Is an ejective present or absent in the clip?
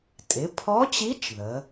present